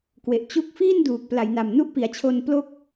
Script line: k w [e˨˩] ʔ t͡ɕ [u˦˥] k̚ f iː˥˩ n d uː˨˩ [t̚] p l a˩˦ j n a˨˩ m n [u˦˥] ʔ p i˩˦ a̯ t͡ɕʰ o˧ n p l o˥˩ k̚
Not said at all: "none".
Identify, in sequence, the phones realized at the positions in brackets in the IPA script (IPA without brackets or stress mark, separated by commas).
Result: e˨˩, u˦˥, k̚, u˦˥